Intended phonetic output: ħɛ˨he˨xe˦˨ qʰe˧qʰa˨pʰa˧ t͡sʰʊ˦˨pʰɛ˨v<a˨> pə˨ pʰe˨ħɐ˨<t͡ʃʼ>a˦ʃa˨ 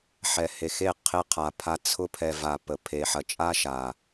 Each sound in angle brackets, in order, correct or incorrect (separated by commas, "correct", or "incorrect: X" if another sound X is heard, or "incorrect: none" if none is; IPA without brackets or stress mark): correct, correct